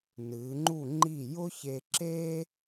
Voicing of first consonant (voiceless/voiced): voiced